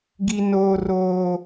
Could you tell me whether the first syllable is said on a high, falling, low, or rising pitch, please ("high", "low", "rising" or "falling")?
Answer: low